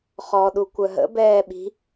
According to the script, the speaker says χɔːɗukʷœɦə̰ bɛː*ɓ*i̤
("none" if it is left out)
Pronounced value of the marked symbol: ɓ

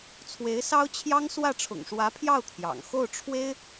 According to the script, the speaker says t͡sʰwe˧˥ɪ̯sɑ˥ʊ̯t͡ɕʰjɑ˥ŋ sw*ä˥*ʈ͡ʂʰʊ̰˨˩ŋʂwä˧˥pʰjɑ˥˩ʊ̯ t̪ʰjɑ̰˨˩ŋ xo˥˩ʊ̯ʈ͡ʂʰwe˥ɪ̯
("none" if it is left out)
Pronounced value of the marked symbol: ä˥˩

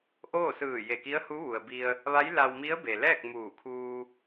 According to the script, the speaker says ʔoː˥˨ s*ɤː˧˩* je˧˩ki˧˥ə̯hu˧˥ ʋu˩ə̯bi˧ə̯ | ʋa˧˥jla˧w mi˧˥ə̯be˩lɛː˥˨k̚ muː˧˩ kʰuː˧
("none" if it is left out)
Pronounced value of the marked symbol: ɯː˧˩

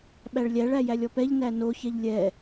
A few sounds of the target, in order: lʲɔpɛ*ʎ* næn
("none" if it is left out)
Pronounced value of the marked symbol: ʎ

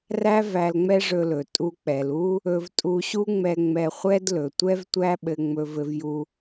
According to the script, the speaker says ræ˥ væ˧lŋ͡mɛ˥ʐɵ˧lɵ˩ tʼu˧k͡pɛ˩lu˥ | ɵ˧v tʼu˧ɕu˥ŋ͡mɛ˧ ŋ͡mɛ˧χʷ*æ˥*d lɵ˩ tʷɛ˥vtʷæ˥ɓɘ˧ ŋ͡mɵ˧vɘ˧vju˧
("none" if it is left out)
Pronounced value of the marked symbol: ɛ˥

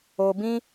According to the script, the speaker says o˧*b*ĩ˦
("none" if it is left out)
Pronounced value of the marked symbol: b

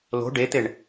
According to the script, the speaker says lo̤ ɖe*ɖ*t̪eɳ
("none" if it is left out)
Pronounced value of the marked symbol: none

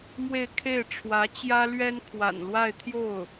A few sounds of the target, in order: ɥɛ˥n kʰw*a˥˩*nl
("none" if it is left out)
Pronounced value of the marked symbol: a̰˨˩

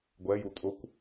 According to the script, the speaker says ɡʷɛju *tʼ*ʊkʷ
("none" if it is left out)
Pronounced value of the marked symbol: tʼ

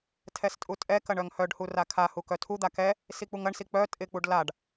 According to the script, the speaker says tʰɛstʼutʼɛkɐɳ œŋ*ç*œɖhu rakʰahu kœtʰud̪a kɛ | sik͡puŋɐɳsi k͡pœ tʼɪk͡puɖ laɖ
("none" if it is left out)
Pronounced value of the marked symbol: h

